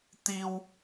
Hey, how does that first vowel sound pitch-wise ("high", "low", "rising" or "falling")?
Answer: high